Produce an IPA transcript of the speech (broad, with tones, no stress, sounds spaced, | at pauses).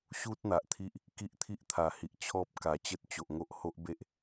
ɕ u˦ t̚ n̪ a˨ ʔ t̪ʰ i˦ ʔ | k i˦ ʔ t̪ʰ i˦ ʔ t̪ʰ a˨˩ h i˨ ʔ t͡ɕʰ ɔ˦ p̚ k a˨˩ t͡ɕ ə˦ t̚ t͡ɕ o˨ ʔ ŋ o˦ ʔ h o˦ ʔ b e˦ ʔ